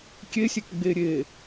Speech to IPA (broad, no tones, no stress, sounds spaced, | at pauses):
kʲ e sʲ e k ɡ͡b e ɾʲ e